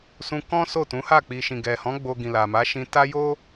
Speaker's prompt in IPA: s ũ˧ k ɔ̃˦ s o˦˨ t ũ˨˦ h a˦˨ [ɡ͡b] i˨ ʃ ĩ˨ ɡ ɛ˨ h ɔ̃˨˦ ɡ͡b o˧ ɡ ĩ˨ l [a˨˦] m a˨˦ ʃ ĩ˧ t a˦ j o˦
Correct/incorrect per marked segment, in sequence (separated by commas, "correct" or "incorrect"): incorrect, incorrect